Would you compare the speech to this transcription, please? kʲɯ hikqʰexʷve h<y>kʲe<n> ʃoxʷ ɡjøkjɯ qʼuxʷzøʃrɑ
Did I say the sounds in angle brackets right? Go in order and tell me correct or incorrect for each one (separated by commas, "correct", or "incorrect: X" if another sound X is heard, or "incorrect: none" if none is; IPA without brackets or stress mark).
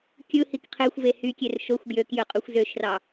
correct, incorrect: r